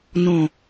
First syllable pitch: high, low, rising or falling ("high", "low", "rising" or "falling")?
low